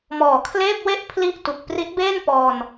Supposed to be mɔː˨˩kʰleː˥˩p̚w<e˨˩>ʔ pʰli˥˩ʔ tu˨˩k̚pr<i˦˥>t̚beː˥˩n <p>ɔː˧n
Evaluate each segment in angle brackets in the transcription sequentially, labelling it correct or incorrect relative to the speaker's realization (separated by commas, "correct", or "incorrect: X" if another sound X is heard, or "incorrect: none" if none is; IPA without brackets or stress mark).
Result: incorrect: e˥˩, correct, correct